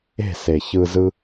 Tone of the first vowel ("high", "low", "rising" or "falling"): falling